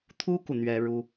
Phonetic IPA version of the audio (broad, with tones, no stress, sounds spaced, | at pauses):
t̪ʰ u˥ k u˨ n̪ ɥ ɛ˥ ɻ u˥